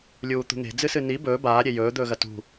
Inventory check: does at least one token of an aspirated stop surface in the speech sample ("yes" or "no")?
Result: no